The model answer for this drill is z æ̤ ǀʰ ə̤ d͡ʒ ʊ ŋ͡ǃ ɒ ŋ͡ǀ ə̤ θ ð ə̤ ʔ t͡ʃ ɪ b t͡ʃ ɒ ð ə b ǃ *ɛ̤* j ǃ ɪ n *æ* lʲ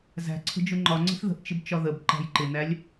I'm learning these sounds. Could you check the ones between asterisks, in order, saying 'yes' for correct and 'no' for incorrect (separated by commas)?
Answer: no, yes